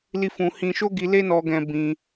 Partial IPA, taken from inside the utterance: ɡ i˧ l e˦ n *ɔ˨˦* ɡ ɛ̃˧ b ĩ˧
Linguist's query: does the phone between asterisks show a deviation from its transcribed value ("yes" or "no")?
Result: yes